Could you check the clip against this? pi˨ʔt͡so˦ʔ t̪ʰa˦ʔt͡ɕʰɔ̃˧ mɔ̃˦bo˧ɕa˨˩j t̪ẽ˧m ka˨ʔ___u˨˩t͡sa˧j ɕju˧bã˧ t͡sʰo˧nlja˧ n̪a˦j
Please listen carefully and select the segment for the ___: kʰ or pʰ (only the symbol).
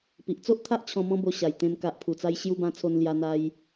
pʰ